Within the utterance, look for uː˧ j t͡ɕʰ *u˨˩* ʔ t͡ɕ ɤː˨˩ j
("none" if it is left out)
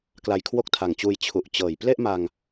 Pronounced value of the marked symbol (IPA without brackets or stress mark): u˨˩